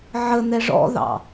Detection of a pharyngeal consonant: present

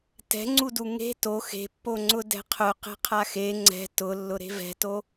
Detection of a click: present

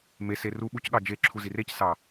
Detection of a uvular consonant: absent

